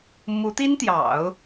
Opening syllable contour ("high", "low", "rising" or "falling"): rising